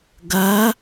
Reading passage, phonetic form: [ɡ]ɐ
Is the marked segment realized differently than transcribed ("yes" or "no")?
no